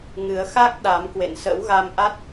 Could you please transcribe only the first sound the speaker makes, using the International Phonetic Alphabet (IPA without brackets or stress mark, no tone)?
ŋ